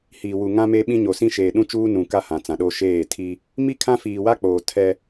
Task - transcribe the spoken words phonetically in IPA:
h iː˨ w u˨ ŋ ã˦ m e˦ ɓ ĩ˦ ɲ o˨ s ĩ˦ ʃ eː˨ ɗ ũ˦ t͡ʃ uː˦ n ũ˨ k a˦ h ã˨ t͡s ã˨ ɗ o˦ ʃ eː˦˨ tʰ i˦ | m i˦ kʰ ã˦ f iː˨ w a˦ k͡p oː˨ tʰ ɛ˦

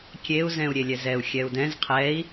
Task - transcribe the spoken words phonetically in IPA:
kʲ e u̯ z ɛ̃ u̯ ɾʲ e lʲ ɛ z ɛ u̯ xʲ ɛ u̯ d ɛ̃ z qʰ ɛ i̯

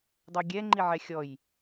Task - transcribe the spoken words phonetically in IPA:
dˤ ɵ j ɡʲ ɛ ŋ͡ǃ i ʕ ɛ xʲ ɔ j

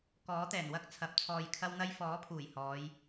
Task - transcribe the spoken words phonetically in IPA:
k ɔː˨˥ t̪ ɛː˨˩ n w ɐ˥ k̚ t͡sʰ ɐ˨˥ p̚ t͡sʰ ɔː˧ j kʰ ɐ˥ w n̪ ɐ˥ j f ɔː˨˥ pʰ uː˨˩ j h ɔː˨˧ j

